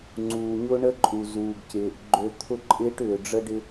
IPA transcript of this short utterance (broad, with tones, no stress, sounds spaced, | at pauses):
ŋ͡ǀ uː˨ ɲ ʊ˦ ɳ ə˦ ǃʼ u˨ z uː˨ ɡ c ɪː˨ ʔ ɡ͡ǃ ø˦ t̪ʰ ʊ˦ ǃʼ ɪː˦ ʈ ʏː˨ ɖ͡ʐ ə˦ ɖ ɪ˦